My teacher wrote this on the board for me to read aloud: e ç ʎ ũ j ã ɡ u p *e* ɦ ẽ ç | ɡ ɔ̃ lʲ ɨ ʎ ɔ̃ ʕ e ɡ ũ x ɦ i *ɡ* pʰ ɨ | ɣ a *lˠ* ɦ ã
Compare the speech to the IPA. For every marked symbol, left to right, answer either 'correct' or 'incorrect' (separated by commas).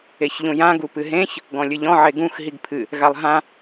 incorrect, correct, correct